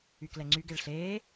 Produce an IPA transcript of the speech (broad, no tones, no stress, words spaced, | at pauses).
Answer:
yklɛŋ͡ǀyɡeɭ ɬeː